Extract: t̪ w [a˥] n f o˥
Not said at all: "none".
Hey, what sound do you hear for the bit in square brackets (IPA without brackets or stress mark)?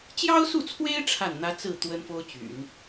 ə˥